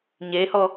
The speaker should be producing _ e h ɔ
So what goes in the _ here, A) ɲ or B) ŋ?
A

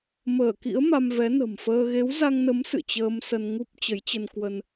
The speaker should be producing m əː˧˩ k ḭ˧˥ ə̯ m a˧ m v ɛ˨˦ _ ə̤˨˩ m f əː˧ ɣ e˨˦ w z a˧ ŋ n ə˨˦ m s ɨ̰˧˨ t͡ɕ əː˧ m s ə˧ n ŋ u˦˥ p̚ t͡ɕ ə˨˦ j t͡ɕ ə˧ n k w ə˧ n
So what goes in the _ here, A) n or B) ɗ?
A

